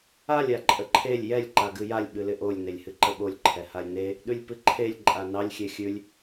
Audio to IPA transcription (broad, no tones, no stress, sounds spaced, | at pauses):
a lʲ a ǃʼ ə ǃʰ e lʲ j ɛ lʲ ǃ a ɡ ɨ j a lʲ ɓ ɨ l ɪ ʔ o lʲ n e lʲ h ɨ ǃ ə ɓ o lʲ ǃʰ ɛ h a lʲ n e | ɗ ʉ lʲ p ɨ ǃʰ e lʲ ǃʼ a n ɑ lʲ xʲ e xʲ ʉ lʲ